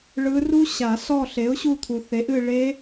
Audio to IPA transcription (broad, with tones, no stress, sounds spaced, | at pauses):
ɭ ɯ˧˥ r u˥ ɕ a˨˩˦ s ɔ˦˨ ɬ e˩˥ ʊ̯ ɕ u˦˨ t̪ʰ u˩ θ e˩˥ ʔ ɨ˦˨ ɭ e˧˥